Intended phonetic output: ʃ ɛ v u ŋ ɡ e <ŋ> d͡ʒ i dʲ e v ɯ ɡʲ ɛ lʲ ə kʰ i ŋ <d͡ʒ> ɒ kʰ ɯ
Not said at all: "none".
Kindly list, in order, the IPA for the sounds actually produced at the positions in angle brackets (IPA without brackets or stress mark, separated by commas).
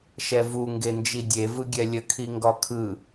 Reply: n, ɡ